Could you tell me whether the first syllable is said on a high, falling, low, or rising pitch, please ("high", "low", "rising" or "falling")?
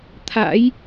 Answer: rising